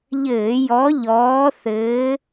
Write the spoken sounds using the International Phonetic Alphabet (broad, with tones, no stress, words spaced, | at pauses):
ʎɘː˧˩˧jɔ˨˦ ʎɔː˨˦θɘː˨˦